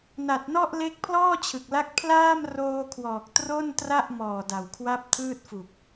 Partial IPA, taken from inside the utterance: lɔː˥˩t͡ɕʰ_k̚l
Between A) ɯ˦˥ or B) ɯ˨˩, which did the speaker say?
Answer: B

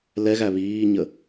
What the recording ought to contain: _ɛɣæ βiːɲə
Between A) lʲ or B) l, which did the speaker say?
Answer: B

